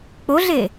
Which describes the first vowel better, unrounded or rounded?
rounded